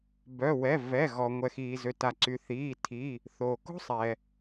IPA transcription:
bœ˩˧˩wɛ˩˧˩ vɛ˩˧˩ɣɔ˩ ŋʷɛ˩xiː˩zø˩ta˩ ǀy˩θiː˩˧˩ tʰi˩˧˩ | θoː˩ko̤˥sˤɛ˩

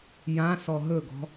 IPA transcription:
jã sɔɦɵɡɔ̤

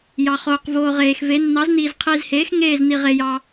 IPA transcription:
jɑ˨χoː˨q voː˨ ʁeː˨xve˨˥ nːɑ˨˥zniː˨z qʰiː˨zheː˨˥x ŋeː˦˨zni˨ʁe˨jɑ˨

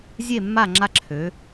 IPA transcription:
zʲe˦˨mːa˦˨ ŋ͡ǁa˦ǁʰø˩˧

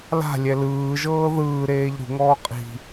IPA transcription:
la̤ lʲɛlɯːʒɤː ðɯːɾeːʎ ɾṳŋɔː qʼi̤

